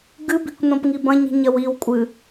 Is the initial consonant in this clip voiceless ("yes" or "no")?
no